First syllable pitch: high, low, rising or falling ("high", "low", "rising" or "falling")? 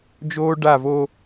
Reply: high